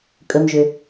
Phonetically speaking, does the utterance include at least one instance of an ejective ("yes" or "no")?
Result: yes